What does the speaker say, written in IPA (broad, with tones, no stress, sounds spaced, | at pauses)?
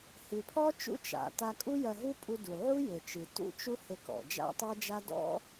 h ɨ˩ pʰ ɔ˥ t͡ʃ ṵ˥ t͡ʃ a̰˩ t a˧ kʼ u˥ j ɐ˧ ɦ u˥ pʼ u˧ d u˩ ʕ u˥ j ɘ˩ t͡ʃ ɨ˩ t ṵ˥ t͡ʃ u˥ h ɘ˧ k ɔ̰˩ d͡ʒ a̰˥ tˤ ɘ˥ d͡ʒ a˥ d ɔ̰˥